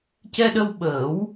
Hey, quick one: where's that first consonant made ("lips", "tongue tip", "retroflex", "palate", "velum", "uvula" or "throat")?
palate